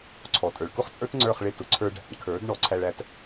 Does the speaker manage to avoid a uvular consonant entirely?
no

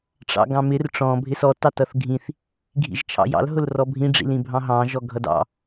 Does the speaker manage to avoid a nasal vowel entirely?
no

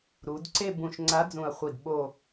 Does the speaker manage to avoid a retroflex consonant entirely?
yes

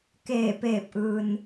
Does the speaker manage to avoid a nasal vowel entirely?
yes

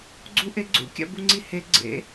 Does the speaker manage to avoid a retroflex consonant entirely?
yes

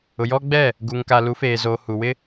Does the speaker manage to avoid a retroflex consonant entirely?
yes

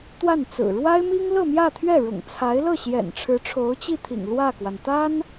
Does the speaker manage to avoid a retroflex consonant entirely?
no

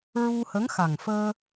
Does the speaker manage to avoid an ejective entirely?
yes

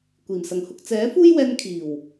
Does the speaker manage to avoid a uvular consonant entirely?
yes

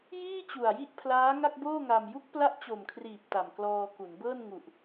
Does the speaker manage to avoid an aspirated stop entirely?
no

